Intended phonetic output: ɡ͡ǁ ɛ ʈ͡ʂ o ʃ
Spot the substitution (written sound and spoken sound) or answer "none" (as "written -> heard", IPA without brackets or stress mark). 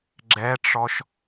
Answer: o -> ɔ